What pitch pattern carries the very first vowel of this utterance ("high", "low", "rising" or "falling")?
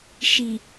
low